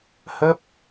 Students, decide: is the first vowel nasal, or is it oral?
oral